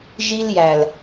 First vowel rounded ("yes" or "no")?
no